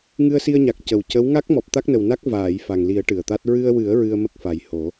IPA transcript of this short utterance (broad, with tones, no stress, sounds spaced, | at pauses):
ŋ ɨ˧ ə̯ s i˧ ə̯ ɲ a˨˩ k̚ c ə˨˩ w c ə˧˥ w ŋ a˦˥ k̚ m ɔ˨˩ p̚ t̪ a˦˥ k̚ n ə˨˩ w n a˦˥ k̚ v aː˨˩˨ j f a˨˩ ŋ l i˨˩˦ ə̯ ʈ ɨ˨˩ ə̯ t̪ a˦˥ t̚ ɹ ɨ˧ ə̯ w ɨ˨˩˦ ə̯ ɹ ɨ˧ ə̯ m ə˦˥ k̚ f a˨˩ j h o˨˩˦